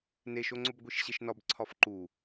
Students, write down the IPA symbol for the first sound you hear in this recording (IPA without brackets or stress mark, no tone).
n